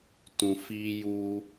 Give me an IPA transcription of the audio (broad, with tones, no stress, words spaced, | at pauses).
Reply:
tũ˨fiː˦ juː˦